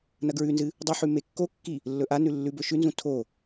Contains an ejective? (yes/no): no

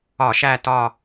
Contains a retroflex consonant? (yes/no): no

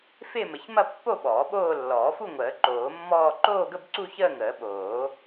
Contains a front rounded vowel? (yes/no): no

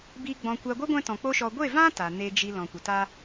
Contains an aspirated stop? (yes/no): no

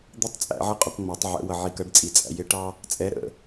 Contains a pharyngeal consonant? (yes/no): yes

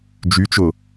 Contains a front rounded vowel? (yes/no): yes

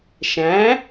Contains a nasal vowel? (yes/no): yes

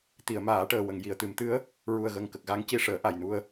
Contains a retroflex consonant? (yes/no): yes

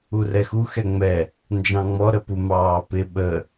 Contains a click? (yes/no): no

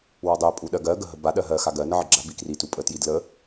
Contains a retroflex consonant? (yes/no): no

